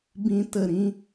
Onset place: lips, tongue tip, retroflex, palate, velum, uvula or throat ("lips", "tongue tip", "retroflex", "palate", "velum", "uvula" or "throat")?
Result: lips